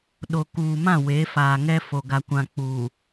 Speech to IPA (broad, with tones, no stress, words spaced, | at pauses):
ɗo˨kuː˨mã˦˨ we˨˦faː˨ŋɛ˦fo˨ ɡa˨kʷã˨ k͡puː˨